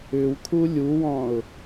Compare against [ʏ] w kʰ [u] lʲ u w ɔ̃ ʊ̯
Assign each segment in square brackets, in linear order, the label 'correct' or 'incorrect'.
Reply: correct, correct

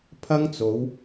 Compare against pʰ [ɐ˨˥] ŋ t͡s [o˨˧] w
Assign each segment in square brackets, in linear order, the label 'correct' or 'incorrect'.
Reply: incorrect: ɐ˥, correct

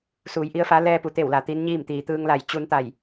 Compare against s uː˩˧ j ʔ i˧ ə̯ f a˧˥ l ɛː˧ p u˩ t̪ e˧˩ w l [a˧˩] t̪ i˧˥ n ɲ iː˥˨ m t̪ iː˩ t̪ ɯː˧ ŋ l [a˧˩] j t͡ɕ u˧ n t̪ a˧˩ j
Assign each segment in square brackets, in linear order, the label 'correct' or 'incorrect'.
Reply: incorrect: a˩, correct

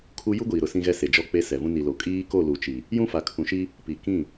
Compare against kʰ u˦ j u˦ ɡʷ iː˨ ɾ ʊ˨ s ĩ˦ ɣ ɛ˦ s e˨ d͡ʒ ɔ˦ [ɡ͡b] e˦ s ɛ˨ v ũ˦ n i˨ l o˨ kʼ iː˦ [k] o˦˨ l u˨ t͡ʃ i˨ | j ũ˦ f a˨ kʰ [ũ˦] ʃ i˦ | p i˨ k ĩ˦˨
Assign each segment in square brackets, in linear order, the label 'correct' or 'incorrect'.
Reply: incorrect: k͡p, correct, incorrect: ũ˨

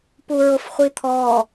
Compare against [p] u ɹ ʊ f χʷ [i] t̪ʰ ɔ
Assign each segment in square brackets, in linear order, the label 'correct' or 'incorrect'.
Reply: correct, correct

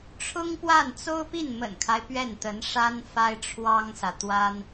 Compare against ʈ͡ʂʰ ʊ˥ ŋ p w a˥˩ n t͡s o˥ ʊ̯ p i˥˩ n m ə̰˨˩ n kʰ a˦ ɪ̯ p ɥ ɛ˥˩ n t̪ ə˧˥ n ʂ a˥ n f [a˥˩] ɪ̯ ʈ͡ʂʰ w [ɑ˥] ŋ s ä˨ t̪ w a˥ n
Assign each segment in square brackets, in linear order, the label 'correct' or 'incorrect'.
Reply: incorrect: a˥, correct

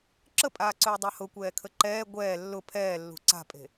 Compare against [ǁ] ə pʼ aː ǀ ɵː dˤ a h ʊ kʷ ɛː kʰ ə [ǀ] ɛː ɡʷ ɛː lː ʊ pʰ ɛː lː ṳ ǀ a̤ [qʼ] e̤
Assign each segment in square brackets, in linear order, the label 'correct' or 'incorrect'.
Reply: correct, incorrect: ǃ, incorrect: pʼ

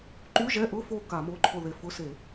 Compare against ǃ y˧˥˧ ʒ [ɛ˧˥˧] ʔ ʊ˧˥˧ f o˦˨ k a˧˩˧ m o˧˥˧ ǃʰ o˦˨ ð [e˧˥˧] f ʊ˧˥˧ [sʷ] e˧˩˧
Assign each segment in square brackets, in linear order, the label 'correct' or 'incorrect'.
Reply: correct, incorrect: e˦˨, incorrect: s

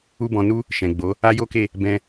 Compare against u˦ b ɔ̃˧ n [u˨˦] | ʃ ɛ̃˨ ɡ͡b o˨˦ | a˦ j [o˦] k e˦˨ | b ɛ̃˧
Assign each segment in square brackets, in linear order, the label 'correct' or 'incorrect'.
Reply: incorrect: u˦, correct

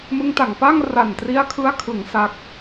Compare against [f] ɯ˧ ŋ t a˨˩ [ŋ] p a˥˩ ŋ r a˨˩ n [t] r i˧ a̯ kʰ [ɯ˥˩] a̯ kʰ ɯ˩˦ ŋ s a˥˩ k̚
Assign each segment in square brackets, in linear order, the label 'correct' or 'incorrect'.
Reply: incorrect: m, correct, correct, incorrect: ɯ˧

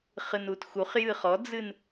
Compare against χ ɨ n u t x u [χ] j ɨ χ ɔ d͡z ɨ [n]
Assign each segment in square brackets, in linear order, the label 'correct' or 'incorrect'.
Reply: correct, correct

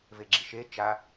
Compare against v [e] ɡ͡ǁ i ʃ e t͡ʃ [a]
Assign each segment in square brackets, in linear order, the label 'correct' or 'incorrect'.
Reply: correct, correct

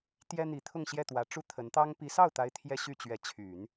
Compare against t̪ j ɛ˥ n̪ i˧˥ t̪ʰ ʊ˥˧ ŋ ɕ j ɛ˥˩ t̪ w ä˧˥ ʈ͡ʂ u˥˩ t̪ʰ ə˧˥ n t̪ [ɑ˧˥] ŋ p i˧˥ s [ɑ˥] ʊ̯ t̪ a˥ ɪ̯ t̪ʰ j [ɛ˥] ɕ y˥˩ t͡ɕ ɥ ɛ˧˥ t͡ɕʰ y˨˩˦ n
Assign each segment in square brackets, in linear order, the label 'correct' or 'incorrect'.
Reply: incorrect: ɑ˥, incorrect: ɑ˥˩, correct

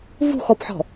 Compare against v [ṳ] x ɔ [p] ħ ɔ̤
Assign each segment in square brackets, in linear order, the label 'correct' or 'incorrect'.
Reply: correct, correct

